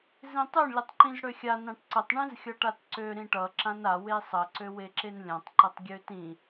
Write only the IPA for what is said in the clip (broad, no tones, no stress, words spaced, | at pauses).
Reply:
zĩtˤøɳ lʲʌtˤǃĩzɽøxʲa nãʈǀətˤ ɳĩzxʲʌʈatǀø ɾĩʈʌ ǁãna wesˤə ǀøweǁenlʲãtˤ ǃətˤɡʲøtĩ